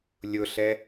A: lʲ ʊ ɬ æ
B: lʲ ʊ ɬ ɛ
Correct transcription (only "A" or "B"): B